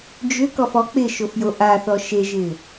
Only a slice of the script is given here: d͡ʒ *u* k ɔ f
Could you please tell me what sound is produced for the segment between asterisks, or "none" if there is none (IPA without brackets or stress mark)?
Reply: ʏ